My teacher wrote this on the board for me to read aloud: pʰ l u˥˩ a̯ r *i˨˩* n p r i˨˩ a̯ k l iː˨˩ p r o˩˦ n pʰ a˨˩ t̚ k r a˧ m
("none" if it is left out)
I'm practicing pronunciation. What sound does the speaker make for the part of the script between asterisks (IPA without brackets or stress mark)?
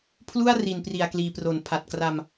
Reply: i˨˩